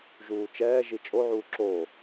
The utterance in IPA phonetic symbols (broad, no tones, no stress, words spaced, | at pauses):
ʒuːt͡ʃɛːʒi t͡ʃʼoʕuː ǁo